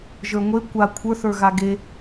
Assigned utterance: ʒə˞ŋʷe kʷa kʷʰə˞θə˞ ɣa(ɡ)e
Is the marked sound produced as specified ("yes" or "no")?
yes